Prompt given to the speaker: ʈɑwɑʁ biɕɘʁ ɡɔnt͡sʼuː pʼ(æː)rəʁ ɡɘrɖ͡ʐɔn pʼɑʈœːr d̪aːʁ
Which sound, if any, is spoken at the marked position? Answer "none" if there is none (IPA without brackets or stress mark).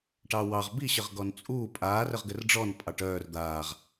aː